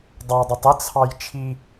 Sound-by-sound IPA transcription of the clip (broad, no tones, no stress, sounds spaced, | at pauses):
dˤ ɑ dˤ ə tˤ ə t͡sʰ ɑ j t͡ʃʰ i